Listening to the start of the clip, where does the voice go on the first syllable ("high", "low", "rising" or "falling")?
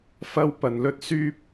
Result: high